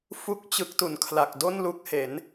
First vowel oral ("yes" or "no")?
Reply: yes